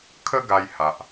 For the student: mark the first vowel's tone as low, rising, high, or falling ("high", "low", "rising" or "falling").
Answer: high